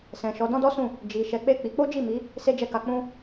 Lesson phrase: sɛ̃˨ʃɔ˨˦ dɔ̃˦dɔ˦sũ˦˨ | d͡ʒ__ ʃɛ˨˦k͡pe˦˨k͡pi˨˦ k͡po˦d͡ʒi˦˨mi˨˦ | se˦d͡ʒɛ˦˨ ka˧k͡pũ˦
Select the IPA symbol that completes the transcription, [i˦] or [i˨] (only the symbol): i˨